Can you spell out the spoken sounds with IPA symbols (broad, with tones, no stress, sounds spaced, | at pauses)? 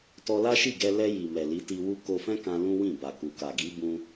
t ɔ˧ l a˦ ʃ i˦˨ ɡ ɛ˧ l ɛ˧ j i˨ m ɛ˨ l i˨˦ t i˧ w u˦ k o˧ f ɛ̃˦ k ã˧ l ũ˦ w ĩ˦˨ b a˨ k u˨ k a˨ ɡ i˨˦ b ũ˧